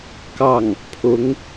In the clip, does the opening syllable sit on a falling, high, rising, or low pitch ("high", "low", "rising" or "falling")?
falling